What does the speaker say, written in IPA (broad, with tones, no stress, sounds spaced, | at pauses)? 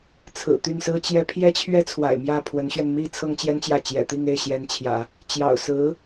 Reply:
t͡sʰ ɹ̩˨˩ t̪ y˥˩ n s ɹ̩˥ t͡ɕ j ɛ˥ pʰ j ɛ˥ t͡ɕʰ ɥ ɛ˥ t͡sʰ w a̰˨˩ ɪ̯ m j ä˥˩ pʰ w ə˧˥ n ɕ ɥ ɛ˧ n m i˥ t͡sʰ ɤ˥ ŋ t͡ɕ j ɛ˥ n t͡ɕ j ä˥˩ t͡ɕ j ɛ̰˨˩ t̪ i˥˧ ŋ e˥˩ ɪ̯ ɕ j ɛ˧˥ n t͡ɕʰ j ä̰˨˩˦ | t͡ɕ j ɑ̰˨˩ ʊ̯ s ɹ̩˧˥